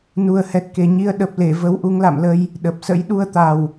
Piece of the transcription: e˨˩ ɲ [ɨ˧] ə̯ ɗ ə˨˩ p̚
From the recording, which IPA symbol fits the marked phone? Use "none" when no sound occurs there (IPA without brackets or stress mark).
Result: i˧